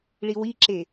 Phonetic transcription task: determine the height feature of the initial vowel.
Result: high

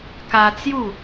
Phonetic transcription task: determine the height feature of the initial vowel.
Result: low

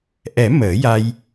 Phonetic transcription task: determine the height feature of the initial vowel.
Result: mid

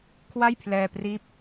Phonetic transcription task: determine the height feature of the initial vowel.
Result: low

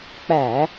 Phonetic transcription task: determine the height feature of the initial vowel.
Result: low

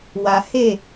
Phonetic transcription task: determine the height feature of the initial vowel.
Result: low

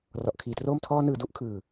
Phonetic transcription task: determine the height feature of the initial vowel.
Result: mid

